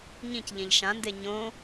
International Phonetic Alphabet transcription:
ɲĩcʎẽʎ ʃãnde ɲõ

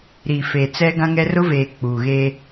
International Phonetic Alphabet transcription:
ɾi˨fe˨ t͡sɛ˦ɡã˦ŋɛ˦ rʊ˦veː˨ k͡puː˨ɣe˦

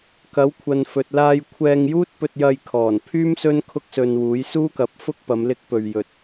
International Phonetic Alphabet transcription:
kɐ˨˥wkʷʰɐ˨nfɵ˨t̚ laː˧jkʷʰɛː˧ŋjuː˥t̚ pɵ˧t̚jɐ˧jkʰɔː˨˩npʰyː˥m sɵ˥nkʰʊ˥k̚sɵ˧nwuː˨˥j suː˥kɐ˨˥p̚fʊ˥k̚pɐ˨˧m lɪ˥k̚pɵ˧ɥjɵ˧t̚

